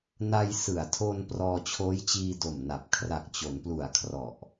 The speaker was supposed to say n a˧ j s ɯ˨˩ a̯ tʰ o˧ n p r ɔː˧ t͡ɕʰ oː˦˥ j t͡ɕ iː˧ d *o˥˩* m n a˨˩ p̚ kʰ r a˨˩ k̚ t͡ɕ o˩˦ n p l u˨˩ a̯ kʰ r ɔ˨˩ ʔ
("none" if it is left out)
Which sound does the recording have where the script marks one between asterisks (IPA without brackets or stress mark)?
o˨˩